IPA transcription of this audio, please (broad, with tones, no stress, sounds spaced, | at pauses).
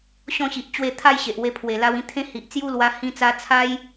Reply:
ɕ ɔ̃˥˧ ɕ i˨ ʔ t͡ɕ w e˥˧ t̪ʰ a˥˧ j ɕ e˨ ʔ w e˧ pʰ w e˨˩ l a˧ w ĩ˧ t̪ʰ ẽ˦ h i˨ ʔ t͡s j u˦ l w a˧ h ĩ˧ t͡s a˧ t͡sʰ a˦ j